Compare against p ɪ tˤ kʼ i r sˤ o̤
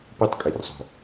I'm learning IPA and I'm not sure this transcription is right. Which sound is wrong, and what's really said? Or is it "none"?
ɪ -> i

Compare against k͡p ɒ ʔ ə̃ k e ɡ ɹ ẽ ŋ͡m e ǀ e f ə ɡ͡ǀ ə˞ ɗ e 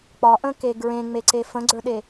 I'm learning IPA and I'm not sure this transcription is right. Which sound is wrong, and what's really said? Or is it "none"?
ə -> ə̃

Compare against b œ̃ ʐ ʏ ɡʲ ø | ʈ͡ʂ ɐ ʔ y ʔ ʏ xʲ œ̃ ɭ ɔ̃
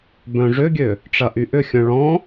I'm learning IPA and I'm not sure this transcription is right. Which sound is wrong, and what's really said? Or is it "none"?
none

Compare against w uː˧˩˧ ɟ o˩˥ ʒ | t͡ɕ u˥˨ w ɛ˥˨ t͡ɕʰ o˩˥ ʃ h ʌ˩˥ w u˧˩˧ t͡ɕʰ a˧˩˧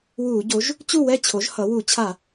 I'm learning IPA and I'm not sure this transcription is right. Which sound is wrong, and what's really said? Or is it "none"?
ʃ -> ʒ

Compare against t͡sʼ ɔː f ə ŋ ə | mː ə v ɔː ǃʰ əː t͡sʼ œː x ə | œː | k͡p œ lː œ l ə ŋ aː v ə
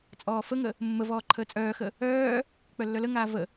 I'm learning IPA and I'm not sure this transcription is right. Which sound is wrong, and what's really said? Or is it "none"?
none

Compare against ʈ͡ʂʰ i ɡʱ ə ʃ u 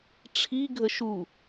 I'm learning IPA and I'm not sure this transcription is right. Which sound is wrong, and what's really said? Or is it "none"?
none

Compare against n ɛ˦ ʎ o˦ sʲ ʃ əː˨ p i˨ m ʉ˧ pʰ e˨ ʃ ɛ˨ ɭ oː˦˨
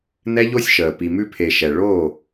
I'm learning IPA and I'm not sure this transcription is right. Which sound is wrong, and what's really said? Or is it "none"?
none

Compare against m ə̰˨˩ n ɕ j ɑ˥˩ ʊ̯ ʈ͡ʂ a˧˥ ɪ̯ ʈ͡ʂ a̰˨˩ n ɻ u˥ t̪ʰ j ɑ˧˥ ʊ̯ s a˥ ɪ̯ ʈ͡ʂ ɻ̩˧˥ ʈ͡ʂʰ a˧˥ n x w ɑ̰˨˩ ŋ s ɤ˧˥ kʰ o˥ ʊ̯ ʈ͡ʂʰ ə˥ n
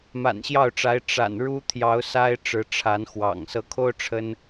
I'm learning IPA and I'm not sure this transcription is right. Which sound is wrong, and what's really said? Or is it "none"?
ə̰˨˩ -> a̰˨˩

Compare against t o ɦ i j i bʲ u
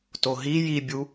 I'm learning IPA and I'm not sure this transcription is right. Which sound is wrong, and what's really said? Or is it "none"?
none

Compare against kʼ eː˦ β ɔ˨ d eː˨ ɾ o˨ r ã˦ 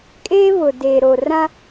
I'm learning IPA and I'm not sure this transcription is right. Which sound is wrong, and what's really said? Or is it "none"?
ɔ˨ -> ʊ˨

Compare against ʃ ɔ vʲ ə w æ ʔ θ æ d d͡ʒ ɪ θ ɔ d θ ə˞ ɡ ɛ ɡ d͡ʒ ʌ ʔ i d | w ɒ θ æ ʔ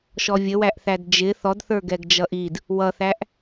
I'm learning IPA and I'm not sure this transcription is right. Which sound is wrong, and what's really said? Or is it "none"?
ɒ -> ʌ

